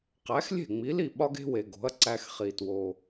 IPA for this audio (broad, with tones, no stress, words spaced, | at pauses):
qæ˩˥xlʲe̤˥˩ŋ͡mi˩˥li˥˩ ɓɒ˧ɡe̤˧we˩ ɡo̤˩˥ɐ̯ ǀæ˧x χi˩two˩